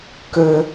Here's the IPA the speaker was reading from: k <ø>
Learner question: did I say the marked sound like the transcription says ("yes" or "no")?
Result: yes